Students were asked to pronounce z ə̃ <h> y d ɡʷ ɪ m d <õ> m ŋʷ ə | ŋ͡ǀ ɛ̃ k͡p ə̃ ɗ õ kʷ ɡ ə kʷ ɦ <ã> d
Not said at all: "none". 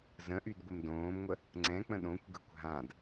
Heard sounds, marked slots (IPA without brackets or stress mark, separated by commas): ʔ, õː, ã